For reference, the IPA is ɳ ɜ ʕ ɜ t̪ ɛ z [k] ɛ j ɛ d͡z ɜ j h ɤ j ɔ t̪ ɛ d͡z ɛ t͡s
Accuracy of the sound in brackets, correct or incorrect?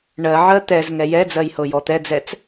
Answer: incorrect